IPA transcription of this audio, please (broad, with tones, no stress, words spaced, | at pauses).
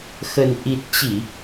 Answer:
xə˨˩nʔi˨˩t̚t͡ɕi˧˩˨